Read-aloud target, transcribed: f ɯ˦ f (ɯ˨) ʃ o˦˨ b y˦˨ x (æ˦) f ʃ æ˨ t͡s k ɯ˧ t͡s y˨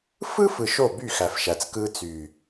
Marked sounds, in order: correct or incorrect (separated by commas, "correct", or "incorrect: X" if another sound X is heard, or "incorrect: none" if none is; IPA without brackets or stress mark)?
correct, incorrect: æ˨